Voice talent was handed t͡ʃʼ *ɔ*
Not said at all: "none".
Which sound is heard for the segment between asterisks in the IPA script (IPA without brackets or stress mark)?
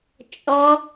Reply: ɔ